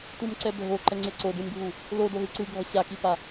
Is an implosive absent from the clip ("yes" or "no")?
yes